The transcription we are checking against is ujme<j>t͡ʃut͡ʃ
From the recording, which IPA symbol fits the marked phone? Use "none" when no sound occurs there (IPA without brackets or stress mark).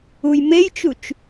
j